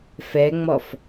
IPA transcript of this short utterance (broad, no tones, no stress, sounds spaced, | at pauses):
f ɛ ŋ͡m ɔ f